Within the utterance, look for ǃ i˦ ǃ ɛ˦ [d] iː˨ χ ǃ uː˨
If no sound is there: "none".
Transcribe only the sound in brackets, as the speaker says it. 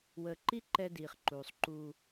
d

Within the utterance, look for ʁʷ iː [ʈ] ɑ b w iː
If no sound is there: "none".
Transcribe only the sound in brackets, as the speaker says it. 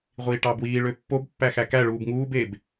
ʈ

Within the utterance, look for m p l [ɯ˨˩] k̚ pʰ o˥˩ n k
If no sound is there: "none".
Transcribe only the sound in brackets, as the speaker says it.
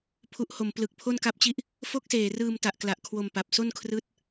ɯ˨˩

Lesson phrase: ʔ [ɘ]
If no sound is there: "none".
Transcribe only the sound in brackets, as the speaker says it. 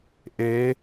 e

